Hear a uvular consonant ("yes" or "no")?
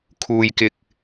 no